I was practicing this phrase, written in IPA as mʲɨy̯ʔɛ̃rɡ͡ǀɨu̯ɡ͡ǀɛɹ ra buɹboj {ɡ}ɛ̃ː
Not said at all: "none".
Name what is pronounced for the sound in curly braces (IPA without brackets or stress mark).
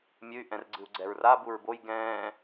ɡ